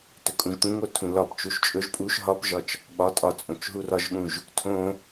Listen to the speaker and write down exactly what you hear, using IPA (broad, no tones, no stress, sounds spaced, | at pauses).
t ɵ kʼ ũ ʒ t̪ ũ ŋ o tʰ ũ l ɒ p t͡ʃ u ʃ t͡ʃʼ ɵ ʒ pʼ u ʃ ɦ ɒ p ʒ ɒ t͡ʃ | ɓ ɒ tʼ ɒ t͡sʼ õ t͡ʃ ɦ u r ɒ ʒ ɠ ũ ʒ | tʰ õ